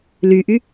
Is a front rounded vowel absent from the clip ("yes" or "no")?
no